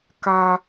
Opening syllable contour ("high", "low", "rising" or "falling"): low